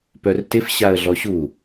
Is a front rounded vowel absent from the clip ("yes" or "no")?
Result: no